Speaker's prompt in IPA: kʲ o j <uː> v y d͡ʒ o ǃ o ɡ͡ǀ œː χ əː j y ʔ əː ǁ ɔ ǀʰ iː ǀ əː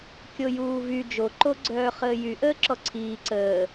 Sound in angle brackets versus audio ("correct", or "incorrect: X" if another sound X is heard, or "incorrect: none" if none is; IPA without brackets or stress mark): correct